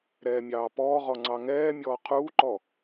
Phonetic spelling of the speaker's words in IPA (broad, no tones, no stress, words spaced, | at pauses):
ɾɛːmʲɑːpɔːʁɔ ŋ͡ǀɑŋɛːmʲɔː qʰuːǃɔ